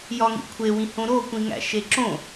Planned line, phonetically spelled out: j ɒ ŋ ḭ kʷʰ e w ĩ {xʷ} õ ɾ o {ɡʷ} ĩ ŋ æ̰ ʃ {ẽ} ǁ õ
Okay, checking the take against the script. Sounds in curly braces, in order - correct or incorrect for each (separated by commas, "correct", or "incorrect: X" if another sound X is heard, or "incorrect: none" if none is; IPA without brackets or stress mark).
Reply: incorrect: h, incorrect: kʷ, incorrect: e